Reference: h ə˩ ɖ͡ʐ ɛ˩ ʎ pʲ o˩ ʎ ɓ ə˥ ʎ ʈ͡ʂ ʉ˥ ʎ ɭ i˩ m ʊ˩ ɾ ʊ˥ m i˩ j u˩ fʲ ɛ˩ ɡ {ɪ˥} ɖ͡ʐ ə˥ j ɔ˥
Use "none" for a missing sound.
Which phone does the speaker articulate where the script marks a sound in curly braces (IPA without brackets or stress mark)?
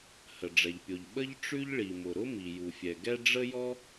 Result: ɛ˥